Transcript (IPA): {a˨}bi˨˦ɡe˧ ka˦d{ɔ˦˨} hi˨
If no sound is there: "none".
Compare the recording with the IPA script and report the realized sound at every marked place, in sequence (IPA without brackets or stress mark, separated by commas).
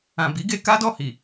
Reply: ã˨, ɔ˦˨